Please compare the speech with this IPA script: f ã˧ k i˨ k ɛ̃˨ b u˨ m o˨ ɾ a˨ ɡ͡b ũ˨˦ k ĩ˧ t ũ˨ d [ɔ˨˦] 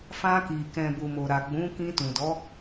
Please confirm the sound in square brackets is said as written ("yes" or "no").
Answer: yes